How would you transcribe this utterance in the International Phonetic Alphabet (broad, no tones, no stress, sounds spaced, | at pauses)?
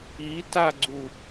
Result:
i t a ɡ͡ǀ u